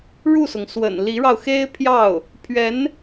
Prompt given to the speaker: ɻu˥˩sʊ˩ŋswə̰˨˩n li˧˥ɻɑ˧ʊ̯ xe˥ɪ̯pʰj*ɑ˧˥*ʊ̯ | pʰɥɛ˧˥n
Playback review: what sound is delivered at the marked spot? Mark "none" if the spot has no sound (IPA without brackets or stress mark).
ɑ˥˩